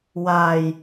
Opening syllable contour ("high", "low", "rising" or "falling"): low